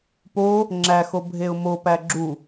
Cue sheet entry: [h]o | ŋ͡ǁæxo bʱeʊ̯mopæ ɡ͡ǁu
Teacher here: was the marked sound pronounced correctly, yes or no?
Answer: no